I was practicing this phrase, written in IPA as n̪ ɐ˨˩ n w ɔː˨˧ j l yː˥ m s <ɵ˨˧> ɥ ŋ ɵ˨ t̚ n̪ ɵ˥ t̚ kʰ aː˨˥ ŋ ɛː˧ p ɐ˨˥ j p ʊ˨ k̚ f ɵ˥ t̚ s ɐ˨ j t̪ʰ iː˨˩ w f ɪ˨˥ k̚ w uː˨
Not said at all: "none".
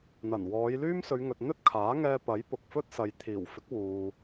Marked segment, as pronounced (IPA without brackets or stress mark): ɵ˨˧